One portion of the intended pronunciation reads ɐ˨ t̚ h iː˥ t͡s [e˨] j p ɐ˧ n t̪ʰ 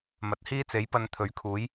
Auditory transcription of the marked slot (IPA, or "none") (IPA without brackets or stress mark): e˨˥